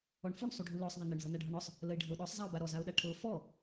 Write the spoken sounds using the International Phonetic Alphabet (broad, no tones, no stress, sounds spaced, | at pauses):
ɔ ɳ f u ɳ sˤ u ɖʱ u l ɔ sˤ ðˤ a n ə ɳ z ɤ n a ɖʱ ɤ ɳ ɔ sˤ | l ə ɪ̯ ɖʱ ə ʊ̯ ɗ ɔ sˤ zˤ a ʊ̯ b a ɾ ɔ z a ʊ̯ ɗ a ʈʰ ɤ f ɔ